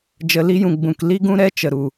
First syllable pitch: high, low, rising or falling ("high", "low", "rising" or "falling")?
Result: low